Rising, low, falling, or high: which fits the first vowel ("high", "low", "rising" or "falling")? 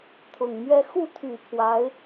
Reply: low